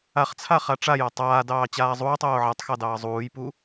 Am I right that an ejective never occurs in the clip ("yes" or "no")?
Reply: yes